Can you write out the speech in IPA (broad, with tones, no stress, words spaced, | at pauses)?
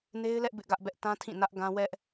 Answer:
ne˦ɪ̯lɛ˦ʔ bɪ˦ʔɡä˦ʔbɛ˦ʔ tã˦tʰĩ˦˨nä˦ʔ ɡã˦ wɛ˦ʔ